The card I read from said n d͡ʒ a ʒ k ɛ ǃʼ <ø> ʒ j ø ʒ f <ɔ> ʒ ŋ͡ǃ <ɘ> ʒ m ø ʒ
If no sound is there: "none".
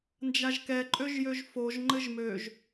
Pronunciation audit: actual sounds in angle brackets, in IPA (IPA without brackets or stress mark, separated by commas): ø, o, ɘ